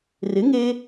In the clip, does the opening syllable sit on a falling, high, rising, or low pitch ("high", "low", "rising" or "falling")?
rising